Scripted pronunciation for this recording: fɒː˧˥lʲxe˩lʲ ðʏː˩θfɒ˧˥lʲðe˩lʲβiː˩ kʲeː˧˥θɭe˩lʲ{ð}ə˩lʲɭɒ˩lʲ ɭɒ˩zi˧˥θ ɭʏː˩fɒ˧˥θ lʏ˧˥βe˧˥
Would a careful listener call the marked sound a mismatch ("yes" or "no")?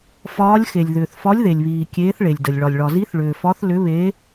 yes